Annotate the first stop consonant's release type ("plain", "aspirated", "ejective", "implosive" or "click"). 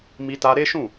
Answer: plain